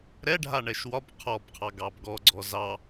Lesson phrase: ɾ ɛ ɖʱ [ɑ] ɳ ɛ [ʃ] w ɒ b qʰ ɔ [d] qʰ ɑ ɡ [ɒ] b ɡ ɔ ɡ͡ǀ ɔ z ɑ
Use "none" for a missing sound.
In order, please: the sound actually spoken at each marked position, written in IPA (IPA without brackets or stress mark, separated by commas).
a, ʃ, b, ɑ